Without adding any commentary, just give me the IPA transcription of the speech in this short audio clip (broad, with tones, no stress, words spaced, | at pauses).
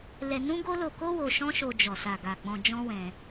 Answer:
lɛ˧ nũ˦ɡo˦lo˧ko˦ wo˧ʃɔ̃˦ʃo˧ d͡ʒɔ˨sa˨ ɡa˨ɡ͡bɔ̃˧d͡ʒɔ̃˦ wɛ̃˧